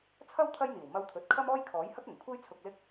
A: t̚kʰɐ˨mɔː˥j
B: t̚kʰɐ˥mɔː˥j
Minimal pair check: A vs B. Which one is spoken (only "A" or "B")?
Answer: B